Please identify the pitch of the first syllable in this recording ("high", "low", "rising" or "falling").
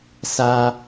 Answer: high